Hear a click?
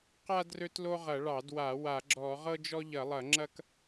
yes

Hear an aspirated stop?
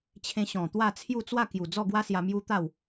yes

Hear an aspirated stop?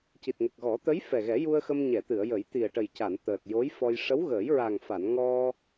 no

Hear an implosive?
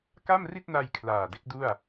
no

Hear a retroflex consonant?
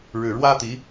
yes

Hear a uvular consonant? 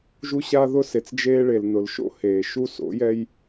no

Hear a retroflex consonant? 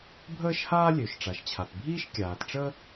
yes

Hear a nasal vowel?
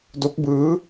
no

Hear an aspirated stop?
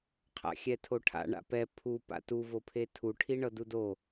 yes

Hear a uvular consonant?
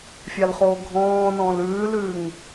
yes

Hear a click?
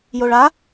no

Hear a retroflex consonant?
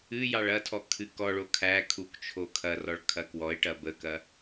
yes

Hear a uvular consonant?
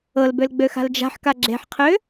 yes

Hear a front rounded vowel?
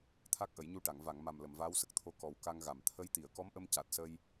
no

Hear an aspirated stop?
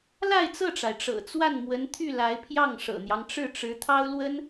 yes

